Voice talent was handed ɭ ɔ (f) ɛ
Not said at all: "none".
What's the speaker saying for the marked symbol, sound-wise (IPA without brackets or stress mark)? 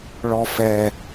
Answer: f